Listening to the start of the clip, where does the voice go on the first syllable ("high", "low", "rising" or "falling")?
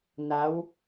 rising